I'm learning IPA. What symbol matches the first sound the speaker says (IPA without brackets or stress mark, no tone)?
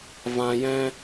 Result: v